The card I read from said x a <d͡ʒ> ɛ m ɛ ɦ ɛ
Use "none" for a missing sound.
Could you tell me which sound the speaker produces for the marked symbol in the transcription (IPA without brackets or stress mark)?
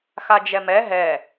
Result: d͡ʒ